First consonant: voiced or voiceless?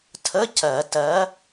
voiceless